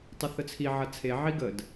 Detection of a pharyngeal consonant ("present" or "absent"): present